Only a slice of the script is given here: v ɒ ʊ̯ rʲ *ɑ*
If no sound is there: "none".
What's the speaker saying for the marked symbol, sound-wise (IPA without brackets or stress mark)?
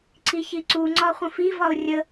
ə